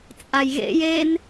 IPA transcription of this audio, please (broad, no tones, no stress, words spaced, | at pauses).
t͡sʼajɣḛj en